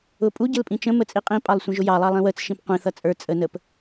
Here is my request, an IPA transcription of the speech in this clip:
ʊ pʼ u ɟ ə l pʼ ĩ t͡ʃ ə̃ m ə t͡sʼ i qʼ ĩ pʼ ɑ lˠ sʷ ə̃ ʒ ʊ j ɑ lˠ ɑ lˠ ĩ w ə t͡s ʃ ĩ p qʷ ĩ θ ʌ t͡sʼ ə˞ t͡sʼ ə n ə p

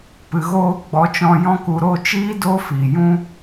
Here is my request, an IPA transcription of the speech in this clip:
p ɨ˨ ɣ oː˧ ɡ͡b ɔ˨˦ t͡ʃ ɔ̃˧ j ɔ̃˧ k u˨ ɾ o˦˨ t͡ʃ iː˦ d o˦ f i˨ j ũ˧

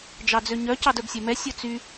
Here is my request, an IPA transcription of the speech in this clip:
d͡ʒ ɑ d͡z ø ɲ œ c ɑ d œ b sʲ ɛ m ɛ sʲ ɵ t͡s y

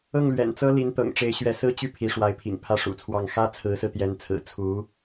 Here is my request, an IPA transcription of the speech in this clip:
ɤ˥˩ ŋ l ɥ ɛ̰˨˩ n t͡s ɤ˥ l i˧˥ n t̪ ɤ̰˨˩ ŋ ʈ͡ʂ e˧˥ ɪ̯ ɕ ɥ ɛ˧˥ s ɹ̩˥ t͡ɕ y˥˩ pʰ i˧˥ ʂ w a˧˥ ɪ̯ pʰ ḭ˨˩ ŋ pʰ ä˥˩ ʂ ṵ˨˩ t͡sʰ w ɑ˥˩ ŋ x ä˥ t͡sʰ ɹ̩˧˥ s ɹ̩˧ t̪ j ɛ˧˥ n t͡sʰ ɹ̩˨˩ t͡sʰ u˧˥

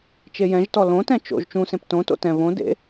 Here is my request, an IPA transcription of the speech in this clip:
t͡ʃ e j ɛ̃ ʒ t ɔ l õ t ɛ̃ t͡ʃ o̰ ʒ t͡ʃ ũ s ẽ p t õ t o̰ t ɛ̃ β õ d ḛ

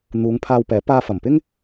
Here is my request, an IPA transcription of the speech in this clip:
n̪ uː˨˧ ŋ pʰ aː˧ w p ɛː˨˥ p aː˧ f ɐ˨˩ m p ɪ˥ ŋ

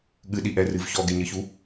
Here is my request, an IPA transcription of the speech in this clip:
ɠ ɨ ɗ i ʔ ɛ r ɨ v ç ɔ ɡ e ɲ ɘ ç u

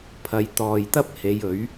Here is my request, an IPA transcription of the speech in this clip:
pʰ ɐ˨˧ j t̪ ɔː˨ j t̪ ɐ˥ p̚ h e˨˧ j ɵ˨˥ ɥ

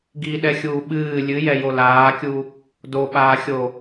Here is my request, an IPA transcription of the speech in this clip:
ɡ i ɗ ɛ xʲ uː ɓ ɨː lʲ ɨ j ɛ j o l aː kʲ u | d o ɓ aː xʲ o

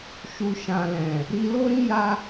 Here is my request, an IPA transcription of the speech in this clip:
ʃ u˨ ʃ ã˨ l ɛ̃˨ | ɾ i˧ l o˦ ɾ ĩ˦ j a˦

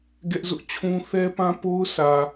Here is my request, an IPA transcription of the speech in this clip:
ɡ ɛ˦ ʔ z ʊ˦ ʔ t͡ɕʰ ũ˦ θ ɛ˦ p ã˦ p o˦ ʊ̯ sʰ ä˨

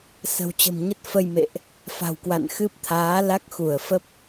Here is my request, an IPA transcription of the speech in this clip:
s ə̤˨˩ w t͡ɕ ə̤˨˩ m ɲ ə˦˥ t̚ f ə˧ j m ḛ˧˨ ʔ | f a̤˨˩ w k w a̰˧˨ n x ɨ˦˥ p̚ t̪ʰ aː˨˦ l a˦˥ k̚ x u˧˩ ə̯ f ə˦˥ p̚

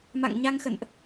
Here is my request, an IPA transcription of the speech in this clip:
m a̰˧˨ ŋ ɲ a˧ ŋ x ə̰˧˨ n ʔ

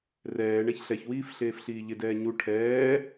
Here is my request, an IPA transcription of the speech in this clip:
r ɛː ɳ ɛ ç ɬ ɛ ç w iː f ɬ eː f ɬ iː ʎ ɪ d ɛː ɲ u ʈʰ ɛː

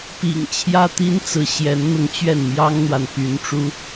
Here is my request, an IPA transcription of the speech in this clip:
p ḭ˨˩ ŋ t͡ɕʰ j ä˥ t̪ i˥ n t͡s ɹ̩˧˥ ɕ j ɛ˧˥ n n̪ ʊ˥˧ ŋ t͡ɕ ɥ ɛ˥˩ n m j ɑ˥ ŋ n̪ w a˨ n p y˧˥ n ʈ͡ʂ u˥

